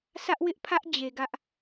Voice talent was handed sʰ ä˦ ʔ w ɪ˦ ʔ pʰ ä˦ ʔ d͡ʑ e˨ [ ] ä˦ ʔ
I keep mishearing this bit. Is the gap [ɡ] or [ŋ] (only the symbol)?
ɡ